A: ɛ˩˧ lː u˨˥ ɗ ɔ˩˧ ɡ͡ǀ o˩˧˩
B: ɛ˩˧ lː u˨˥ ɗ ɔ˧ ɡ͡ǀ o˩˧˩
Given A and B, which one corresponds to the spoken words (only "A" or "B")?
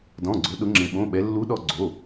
B